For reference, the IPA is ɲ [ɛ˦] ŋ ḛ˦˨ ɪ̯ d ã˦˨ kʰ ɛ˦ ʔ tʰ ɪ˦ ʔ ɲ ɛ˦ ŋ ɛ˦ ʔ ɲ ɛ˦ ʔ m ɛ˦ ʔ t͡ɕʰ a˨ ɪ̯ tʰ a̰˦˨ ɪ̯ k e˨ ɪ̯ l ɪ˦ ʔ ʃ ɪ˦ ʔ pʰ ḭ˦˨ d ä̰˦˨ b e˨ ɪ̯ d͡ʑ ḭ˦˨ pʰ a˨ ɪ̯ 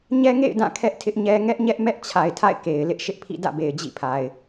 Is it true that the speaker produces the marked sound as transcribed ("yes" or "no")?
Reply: yes